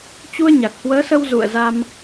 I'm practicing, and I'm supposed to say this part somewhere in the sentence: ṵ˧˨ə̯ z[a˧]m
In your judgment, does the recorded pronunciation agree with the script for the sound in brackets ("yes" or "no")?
yes